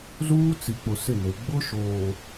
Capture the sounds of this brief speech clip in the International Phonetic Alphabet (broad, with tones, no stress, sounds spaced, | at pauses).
z uː˦ t͡s i˨ k͡p ʊ˨ s ɪ˦˨ n e˨ ɡ͡b ʊ˦ ʃ oː˨